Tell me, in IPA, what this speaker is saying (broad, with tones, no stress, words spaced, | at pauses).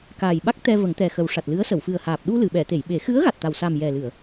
kaː˨˩jɓa˦˥k̚ t̪ɛ˧ və˨˩˦ŋt̪ɛ˨˩ xə˨˩wʂa˨˩t̚lɨ˧˥ə̯sə˨˩˨w fɨ˨˩ə̯haː˨˩p̚ ɗu˧lɨ˨˩˨ ɓɛ˨˩˨t̪e˨˩˨jɓe˨˩˦ xɨ˧˥ə̯ ɣa˨˩t̚t̪a˨˩wsa˨˩m jɛ˨˩lɨ˨˩˨ə̯